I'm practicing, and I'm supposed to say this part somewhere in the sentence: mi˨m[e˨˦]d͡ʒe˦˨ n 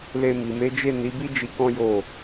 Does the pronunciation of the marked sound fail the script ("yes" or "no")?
no